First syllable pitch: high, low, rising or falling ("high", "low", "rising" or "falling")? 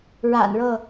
low